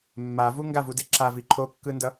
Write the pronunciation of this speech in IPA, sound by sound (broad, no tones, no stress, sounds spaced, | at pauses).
mː a v u ŋ ɡ a v u d e ǁ a v i ǃʰ o kː ɯ n d ʌ